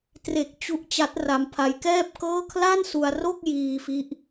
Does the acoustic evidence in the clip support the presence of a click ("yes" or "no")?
no